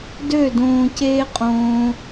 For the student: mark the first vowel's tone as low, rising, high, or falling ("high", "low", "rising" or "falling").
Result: falling